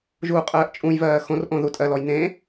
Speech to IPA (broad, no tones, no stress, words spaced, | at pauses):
ʒuːqʼɜːʔt͡ʃʼũjvɜː xõrʔõ ðutʼɜlɔj nẽ